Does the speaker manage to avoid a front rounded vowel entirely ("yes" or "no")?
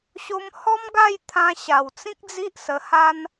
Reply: yes